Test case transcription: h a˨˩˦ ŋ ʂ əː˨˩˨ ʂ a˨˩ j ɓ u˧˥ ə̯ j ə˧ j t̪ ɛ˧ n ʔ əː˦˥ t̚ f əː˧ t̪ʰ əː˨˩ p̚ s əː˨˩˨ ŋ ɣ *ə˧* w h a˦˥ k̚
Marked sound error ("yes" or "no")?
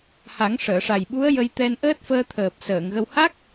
no